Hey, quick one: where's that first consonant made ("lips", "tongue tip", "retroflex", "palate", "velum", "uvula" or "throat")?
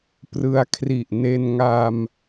lips